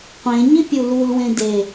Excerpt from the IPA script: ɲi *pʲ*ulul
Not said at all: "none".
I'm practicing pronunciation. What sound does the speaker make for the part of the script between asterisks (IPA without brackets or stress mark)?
pʲ